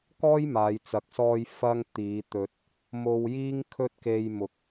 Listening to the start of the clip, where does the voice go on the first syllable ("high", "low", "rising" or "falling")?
high